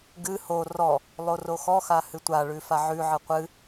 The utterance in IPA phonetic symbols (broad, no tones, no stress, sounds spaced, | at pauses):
ɡ ɨ h o r ɔ | lˠ o r o x ɔ x a h ɨ tʷ a ɭ ʉ f a ʕ ʉ ʕ ɨ qʷ ɨ